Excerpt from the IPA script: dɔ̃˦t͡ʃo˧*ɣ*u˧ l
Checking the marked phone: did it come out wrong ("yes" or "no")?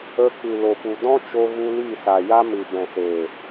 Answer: no